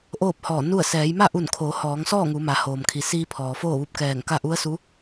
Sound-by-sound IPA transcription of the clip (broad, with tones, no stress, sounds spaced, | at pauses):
ʔ oː˥˨ p̚ h ɔː˧˩ n u˥˨ ə̯ s ɛː˩˧ j m a˥˨ ʔ u˧˩ n kʰ oː˩˧ h ɔː˩˧ ŋ s ɔː˥˨ ŋ u˩˧ m a˩˧ h oː˩ m kʰ i˩ s iː˧ pʰ ɔː˩ f oː˥˨ ʋ u˧ p̚ k ɛː˧˩ ŋ k a˥˨ ʔ u˧˥ ə̯ s u˧˥